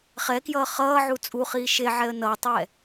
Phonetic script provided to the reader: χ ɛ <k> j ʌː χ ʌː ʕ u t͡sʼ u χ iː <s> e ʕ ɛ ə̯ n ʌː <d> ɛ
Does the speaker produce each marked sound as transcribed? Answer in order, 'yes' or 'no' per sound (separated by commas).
yes, no, no